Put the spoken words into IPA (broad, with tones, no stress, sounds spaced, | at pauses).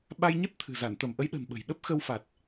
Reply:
ɓ a˧ j ɲ ə˦˥ t̚ t̪ʰ ɨ̤˨˩ z a˧˩ n t̪ ə˧˩ m ʔ ə˨˦ j ɗ ə̤˨˩ n ɓ ə̤˨˩ j ɗ ə˦˥ p̚ x ə˧ w f a˨˩ t̚